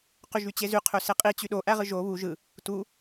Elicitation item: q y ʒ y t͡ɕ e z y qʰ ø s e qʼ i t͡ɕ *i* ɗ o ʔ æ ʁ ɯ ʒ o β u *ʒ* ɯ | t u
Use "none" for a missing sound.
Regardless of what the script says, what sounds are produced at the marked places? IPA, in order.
y, ʒ

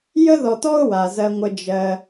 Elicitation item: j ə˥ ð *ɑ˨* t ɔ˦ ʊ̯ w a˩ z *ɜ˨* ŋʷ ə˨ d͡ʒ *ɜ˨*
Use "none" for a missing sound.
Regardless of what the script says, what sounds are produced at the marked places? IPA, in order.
ɔ˨, ɜ˨, ɜ˨

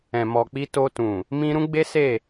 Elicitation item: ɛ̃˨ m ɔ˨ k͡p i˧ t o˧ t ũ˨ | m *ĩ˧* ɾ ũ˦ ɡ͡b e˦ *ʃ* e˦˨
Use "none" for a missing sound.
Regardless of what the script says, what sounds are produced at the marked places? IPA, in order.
ĩ˧, s

